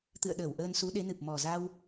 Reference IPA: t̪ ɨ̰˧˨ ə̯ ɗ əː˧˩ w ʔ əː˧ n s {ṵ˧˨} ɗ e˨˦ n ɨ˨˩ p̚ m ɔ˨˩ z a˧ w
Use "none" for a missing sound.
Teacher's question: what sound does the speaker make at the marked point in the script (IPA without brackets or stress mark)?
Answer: u˨˦